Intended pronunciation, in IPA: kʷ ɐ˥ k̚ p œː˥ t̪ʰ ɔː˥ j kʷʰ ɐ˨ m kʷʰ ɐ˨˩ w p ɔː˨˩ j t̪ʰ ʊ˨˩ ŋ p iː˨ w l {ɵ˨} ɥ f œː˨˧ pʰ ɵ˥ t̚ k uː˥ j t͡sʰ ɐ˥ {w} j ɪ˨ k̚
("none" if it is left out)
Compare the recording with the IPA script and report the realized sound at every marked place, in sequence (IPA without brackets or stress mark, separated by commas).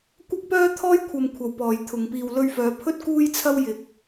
ɵ˧, w